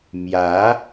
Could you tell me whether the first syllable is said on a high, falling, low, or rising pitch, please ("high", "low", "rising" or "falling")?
rising